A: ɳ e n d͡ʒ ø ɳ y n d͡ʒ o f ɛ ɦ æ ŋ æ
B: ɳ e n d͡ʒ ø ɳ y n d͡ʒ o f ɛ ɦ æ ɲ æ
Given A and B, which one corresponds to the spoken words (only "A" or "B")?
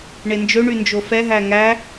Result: A